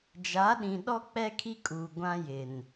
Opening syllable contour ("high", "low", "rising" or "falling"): rising